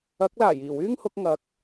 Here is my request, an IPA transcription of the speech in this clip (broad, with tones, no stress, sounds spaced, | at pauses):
ɐ˨˥ k̚ l aː˨˩ j iː˨˩ w yː˥ ŋ h ʊ˨˥ k̚ ŋ ɐ˨˥ k̚